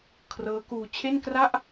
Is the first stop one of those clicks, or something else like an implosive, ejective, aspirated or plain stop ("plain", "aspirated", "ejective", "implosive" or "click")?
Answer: aspirated